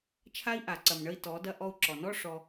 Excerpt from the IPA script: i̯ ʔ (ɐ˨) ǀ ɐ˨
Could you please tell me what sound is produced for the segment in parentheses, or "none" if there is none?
a˨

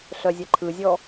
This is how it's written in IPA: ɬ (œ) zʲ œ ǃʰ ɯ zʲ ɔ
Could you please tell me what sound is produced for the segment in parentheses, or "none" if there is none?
œ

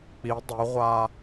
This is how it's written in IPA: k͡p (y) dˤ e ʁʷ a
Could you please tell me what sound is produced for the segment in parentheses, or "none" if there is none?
i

